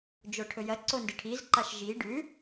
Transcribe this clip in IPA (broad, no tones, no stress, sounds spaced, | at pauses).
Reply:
d͡ʒ o ʈʰ ɵ j ɐ ǀ o n d ɨ ʈʰ i z ǃ a ʃ ʒ i ɖ ʉ